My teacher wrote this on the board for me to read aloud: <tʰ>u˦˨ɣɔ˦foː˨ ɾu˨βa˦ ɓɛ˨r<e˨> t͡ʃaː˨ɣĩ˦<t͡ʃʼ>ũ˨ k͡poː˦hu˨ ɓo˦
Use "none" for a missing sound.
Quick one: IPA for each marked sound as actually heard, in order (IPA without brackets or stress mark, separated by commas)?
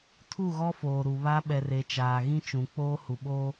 tʰ, e˨, t͡ʃ